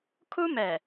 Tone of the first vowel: high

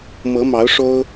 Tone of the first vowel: rising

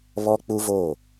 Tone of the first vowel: high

